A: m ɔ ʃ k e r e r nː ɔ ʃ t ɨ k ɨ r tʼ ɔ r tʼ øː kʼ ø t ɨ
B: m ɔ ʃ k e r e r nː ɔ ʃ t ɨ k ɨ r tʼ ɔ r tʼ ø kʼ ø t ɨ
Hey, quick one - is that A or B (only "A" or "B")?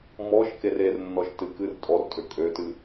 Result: B